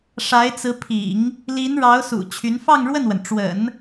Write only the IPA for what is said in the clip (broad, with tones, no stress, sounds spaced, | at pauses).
ʂ a˧˥ ɪ̯ t͡s ɹ̩˧˥ pʰ ḭ˨˩˦ ŋ | l i˧˥ n ɻ ɑ˧˥ ʊ̯ s ṵ˨˩ t͡ɕʰ y˧˥ n f ɑ˥˧ ŋ ɻ w ə˥˩ n w ə˩ n ʈ͡ʂ w ə̰˨˩˦ n